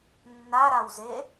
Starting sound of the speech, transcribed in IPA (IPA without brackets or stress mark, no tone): nː